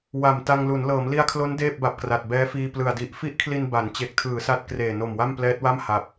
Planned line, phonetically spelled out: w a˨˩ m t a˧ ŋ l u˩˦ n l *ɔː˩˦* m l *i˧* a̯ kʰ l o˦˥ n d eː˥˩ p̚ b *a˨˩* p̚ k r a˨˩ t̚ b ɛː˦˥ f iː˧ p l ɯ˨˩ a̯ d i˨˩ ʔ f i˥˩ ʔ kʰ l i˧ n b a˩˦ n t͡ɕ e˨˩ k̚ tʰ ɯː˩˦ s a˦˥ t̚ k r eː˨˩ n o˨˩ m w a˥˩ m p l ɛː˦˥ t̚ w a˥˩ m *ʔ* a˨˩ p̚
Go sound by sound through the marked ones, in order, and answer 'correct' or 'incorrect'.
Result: incorrect: ɤː˩˦, correct, correct, incorrect: h

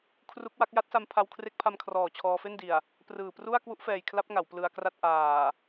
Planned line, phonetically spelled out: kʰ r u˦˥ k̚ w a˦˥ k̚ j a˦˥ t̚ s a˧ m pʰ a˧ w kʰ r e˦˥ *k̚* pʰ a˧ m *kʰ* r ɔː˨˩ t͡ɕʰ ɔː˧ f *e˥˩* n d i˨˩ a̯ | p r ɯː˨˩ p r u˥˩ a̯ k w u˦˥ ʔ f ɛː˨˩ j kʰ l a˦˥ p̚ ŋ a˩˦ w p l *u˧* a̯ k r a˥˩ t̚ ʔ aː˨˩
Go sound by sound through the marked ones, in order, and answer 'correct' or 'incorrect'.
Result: correct, correct, correct, incorrect: ɯ˧

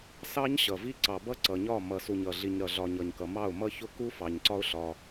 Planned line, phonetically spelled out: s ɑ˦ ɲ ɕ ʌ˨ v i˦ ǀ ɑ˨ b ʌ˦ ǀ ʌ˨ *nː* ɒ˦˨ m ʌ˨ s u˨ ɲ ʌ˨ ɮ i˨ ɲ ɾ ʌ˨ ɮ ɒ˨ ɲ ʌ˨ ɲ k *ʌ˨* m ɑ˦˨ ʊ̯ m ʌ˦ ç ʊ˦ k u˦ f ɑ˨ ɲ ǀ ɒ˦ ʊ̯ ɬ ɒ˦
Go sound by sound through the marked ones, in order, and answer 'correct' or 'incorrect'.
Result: incorrect: ɲ, correct

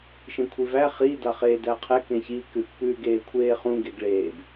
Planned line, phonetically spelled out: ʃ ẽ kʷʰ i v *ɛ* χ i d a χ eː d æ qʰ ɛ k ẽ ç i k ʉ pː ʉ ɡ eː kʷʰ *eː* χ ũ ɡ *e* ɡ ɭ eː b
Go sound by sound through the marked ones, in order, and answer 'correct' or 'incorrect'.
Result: incorrect: æ, correct, correct

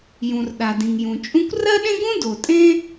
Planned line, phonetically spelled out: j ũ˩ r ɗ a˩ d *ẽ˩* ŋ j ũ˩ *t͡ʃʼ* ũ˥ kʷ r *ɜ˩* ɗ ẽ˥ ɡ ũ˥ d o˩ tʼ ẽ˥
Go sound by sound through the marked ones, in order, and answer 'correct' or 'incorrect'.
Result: incorrect: ĩ˩, correct, incorrect: ɜ˥

